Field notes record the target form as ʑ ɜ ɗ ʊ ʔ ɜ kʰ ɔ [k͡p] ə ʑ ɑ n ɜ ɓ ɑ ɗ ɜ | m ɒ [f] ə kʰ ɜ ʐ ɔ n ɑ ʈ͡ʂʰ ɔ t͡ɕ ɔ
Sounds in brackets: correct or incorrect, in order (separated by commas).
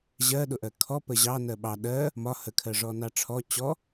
incorrect, incorrect